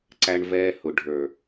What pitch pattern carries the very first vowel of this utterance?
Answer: high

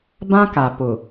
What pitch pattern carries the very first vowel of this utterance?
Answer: high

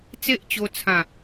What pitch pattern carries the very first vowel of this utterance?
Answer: high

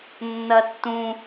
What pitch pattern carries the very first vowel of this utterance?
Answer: low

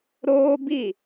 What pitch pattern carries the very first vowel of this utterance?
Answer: high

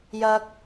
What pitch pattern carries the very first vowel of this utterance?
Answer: high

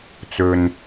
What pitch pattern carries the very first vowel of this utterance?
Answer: low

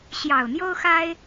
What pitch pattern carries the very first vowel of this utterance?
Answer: low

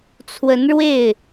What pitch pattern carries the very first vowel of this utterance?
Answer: rising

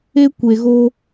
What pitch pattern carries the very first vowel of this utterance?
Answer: high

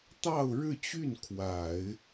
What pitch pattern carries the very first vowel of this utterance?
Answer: falling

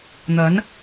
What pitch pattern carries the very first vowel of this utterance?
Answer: rising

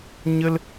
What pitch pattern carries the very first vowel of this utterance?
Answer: high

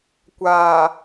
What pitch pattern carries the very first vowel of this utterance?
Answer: low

